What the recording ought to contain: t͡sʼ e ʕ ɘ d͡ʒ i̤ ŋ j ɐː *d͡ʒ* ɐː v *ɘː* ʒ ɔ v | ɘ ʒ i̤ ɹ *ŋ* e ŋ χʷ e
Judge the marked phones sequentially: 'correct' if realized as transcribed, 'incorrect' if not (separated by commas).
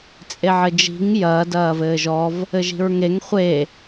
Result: incorrect, correct, correct